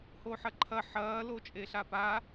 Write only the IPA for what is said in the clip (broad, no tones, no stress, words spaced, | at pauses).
hoħɐǃʰɐ ħɐː lot͡ʃʼeɬapa